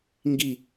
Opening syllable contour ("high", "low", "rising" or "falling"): falling